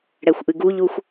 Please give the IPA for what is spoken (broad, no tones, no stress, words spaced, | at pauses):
ɽɛxʷʔɨɡuʎuxʷ